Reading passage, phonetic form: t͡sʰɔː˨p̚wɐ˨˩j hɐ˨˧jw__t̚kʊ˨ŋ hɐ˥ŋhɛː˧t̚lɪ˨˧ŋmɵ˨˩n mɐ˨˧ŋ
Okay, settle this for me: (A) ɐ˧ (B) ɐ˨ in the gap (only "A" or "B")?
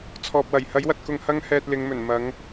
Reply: B